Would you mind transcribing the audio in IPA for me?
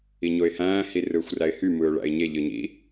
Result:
i ɲ o ɪ̯ h æ̃ː h i r ɯː xʷ r æ ɪ̯ h y m ɯː ʊ̯ ɭ æ̰ ɪ̯ ɲ e ʎ ɯ ɲ ḭ

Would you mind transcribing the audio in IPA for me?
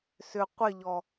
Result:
s ʏ qʷ ɪ ʎ ɔ

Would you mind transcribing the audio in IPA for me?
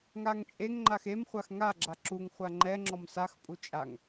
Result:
ŋ a ŋ t͡ʃʼ e ŋ ŋ͡ǃ a x e m χʷ a x ŋ a ɡ͡ǁ a ǁ u ŋ χʷ a ŋ͡ǃ ɛ ŋ͡ǁ ɔ m s a x pʼ u t͡ʃʼ a ŋ

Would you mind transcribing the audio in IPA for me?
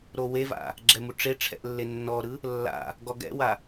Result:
ɾ o w e v a̰ | ɡ͡ǁ ɛ m u ʈ͡ʂ e ʈ͡ʂʰ ɛ̰ ʔ lː e nː ɔ ɾ ɯ | lː a̰ | ɡ ɔ ɡ ɛ̰ w a

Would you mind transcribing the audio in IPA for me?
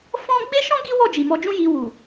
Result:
f ɔ̃˦ ɡ͡b e˦ ʃ ɔ̃˦ ɡ i˦ w ɔ˦˨ d͡ʒ i˨ m ɔ˧ d͡ʒ ũ˦ j i˧ w u˨

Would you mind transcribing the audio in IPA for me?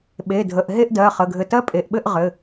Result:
ɓ e˩˧˩ dʱ ə˩˧˩ ʔ ɦ e˥˧ ʔ d ɜ˩˧˩ χ ə˩˧˩ ɡʱ ɘ˧˩ t ɜ˦˥ pʼ e˩˧˩ ʔ ɓ ɘ˥˧ ʔ ʁ ɘ˩˧˩

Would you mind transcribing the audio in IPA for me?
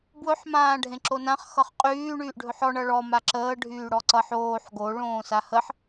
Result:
b w ɵ ħ m ãː ɖʱ ẽ ǁ o n ã χ x ʌ χ qʼ yː ɳ yː ʔ ɖʱ ɵ ħ ɔ ɳ ʌ ɭ ɔ m a ǁ əː ɖʱ yː ɽ ɔ ǀ ʌ ħ oː ħ ɡ o ɭ õː s a h ə ħ

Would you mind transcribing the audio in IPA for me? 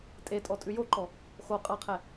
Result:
tʼ e tʼ ɔ tʼ ʉ j o ǃ ɔ | x o qʼ a qʰ ɛ

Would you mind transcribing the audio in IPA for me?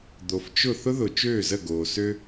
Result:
d̪ o˨ f t͡ʃ ʊ˥˨ θ ʊ˥ ð ʊ˨ t͡ʃ øː˥˨ z ə˥˨ ɡ oː˨ s ø˥

